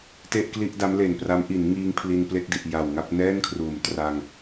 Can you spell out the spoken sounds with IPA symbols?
te˥˩ʔkli˥˩ʔda˦˥mle˨˩n pra˦˥m ʔi˩˦nŋiː˧ŋ pʰli˧nple˥˩k̚di˨˩ʔ ja˨˩wŋa˥˩p̚ nɛː˥˩n kʰruː˩˦mtra˧ŋ

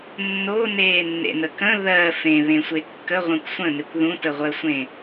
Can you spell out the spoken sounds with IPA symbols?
nːoneːnːḛnə kə̃ ðɜ fẽβẽsʷe kːəʁʷẽkʷ sʷə̃nekʷ ðũtəʁʷɜsʷẽ

